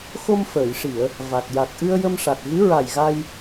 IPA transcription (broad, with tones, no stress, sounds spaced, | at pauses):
x o˧ m f əː˨˩˨ j ʂ i˨˩˨ ə̯ | v a˨˩ t̚ j a˨˩ k̚ ʔ ɨ˧ ə̯ j ə˧ m ʂ a˨˩ t̚ ɣ ɨ˧˥ ɹ a˨˩ j ɣ a˧ j